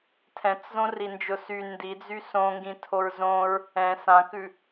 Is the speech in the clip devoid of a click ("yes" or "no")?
yes